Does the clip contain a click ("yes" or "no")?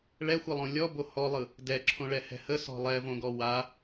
yes